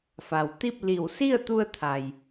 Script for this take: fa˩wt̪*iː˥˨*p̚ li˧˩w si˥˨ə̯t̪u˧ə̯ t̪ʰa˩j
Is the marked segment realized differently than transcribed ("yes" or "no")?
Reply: yes